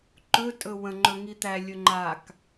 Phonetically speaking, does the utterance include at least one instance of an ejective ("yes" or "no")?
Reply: yes